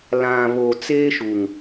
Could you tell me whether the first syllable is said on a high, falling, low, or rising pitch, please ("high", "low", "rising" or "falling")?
low